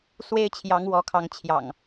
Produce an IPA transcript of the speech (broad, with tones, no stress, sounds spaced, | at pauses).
s w e˦ ɪ̯ t͡ɕʰ j ɑ˨˦ ŋ w ɔ˨˦ kʰ ɑ˨˦ ŋ t͡ɕʰ j ɑ̰˨˩ ŋ